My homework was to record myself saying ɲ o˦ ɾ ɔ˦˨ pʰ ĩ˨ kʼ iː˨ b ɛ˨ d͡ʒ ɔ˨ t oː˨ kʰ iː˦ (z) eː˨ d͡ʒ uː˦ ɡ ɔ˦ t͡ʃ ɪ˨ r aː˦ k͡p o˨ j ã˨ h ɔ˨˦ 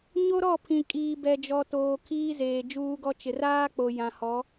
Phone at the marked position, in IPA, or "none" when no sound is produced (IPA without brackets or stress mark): z